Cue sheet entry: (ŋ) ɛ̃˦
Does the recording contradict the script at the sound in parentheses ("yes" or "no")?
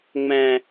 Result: yes